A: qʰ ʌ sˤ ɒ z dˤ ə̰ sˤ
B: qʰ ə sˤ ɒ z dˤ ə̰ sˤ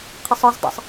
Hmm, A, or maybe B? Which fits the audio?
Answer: B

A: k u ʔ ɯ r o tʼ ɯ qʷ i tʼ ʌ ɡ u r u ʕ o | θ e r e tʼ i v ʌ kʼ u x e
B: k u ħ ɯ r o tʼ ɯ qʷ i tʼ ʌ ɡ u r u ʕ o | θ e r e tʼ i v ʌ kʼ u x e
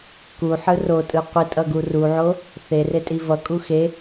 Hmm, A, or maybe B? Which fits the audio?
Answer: B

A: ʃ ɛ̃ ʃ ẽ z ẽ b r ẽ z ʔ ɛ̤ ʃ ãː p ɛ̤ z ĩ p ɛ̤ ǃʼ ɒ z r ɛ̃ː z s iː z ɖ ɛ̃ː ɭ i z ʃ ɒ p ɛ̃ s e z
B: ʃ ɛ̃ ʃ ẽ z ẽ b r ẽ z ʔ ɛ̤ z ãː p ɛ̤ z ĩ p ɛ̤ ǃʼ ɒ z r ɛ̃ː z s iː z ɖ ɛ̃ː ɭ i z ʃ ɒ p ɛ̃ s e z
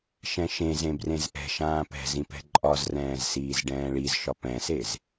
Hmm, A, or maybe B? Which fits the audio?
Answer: A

